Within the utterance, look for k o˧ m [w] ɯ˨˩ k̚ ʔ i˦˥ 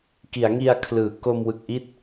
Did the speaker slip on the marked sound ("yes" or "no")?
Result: no